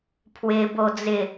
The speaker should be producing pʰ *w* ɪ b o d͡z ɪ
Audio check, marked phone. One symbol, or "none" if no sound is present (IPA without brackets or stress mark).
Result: w